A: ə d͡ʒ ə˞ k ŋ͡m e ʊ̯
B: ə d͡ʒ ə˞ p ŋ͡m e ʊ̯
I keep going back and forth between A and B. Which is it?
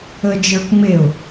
A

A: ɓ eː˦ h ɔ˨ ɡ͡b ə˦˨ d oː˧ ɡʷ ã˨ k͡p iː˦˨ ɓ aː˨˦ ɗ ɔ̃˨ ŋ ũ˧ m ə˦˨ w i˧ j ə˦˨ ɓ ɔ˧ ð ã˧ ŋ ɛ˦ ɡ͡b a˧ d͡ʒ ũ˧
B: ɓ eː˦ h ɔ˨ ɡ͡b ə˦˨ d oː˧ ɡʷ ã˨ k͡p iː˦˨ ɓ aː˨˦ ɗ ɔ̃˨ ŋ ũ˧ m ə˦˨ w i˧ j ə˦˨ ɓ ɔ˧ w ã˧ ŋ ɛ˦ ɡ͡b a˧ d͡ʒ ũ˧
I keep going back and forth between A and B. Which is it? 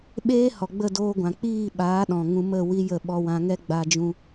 B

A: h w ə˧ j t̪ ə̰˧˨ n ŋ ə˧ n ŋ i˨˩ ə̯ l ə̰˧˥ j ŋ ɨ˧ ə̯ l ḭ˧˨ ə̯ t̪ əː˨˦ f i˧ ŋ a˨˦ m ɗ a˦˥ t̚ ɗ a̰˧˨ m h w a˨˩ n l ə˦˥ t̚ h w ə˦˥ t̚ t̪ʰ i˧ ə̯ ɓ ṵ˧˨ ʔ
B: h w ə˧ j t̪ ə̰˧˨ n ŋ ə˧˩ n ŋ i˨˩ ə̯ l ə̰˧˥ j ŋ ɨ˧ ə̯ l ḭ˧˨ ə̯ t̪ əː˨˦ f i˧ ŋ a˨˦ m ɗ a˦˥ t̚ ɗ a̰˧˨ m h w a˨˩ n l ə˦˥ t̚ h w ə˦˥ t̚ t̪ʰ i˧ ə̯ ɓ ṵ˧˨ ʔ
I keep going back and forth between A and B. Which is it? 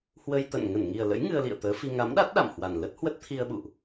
B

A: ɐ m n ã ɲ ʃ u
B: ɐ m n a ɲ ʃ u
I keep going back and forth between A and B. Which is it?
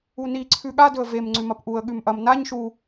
B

